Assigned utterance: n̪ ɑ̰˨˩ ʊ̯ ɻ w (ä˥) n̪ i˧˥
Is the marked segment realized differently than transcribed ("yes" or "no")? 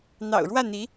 yes